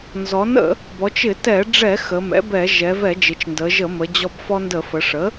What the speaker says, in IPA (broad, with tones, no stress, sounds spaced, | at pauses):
n z ɔ˩˥ n ə̰˧˩˧ | b ɔ˩˧ t͡ʃ ɪ˧˩˧ t ɛ˧˩˧ ɖ͡ʐ ɛ˧˩˧ x ə˩˧ m ɛ̰˩˥ b ɛ˧˩˧ ʒ ɛ˩˧ v ɛ˧˩˧ d͡ʒ ɪ˩˧ t͡ʃ n d ə˩˧ ʒ ə˧˩˧ m ə˩˧ d͡ʑ ɔ˧ b f ɔ˧ n d ə˧˩˧ f ə˩˧ ʂ ə˩˥